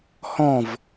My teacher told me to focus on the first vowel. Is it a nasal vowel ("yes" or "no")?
yes